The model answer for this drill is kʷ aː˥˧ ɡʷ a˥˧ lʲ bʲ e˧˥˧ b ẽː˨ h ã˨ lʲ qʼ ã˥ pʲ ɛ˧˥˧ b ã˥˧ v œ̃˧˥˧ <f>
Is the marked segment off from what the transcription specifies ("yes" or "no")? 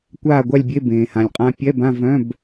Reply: yes